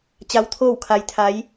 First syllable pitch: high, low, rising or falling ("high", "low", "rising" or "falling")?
rising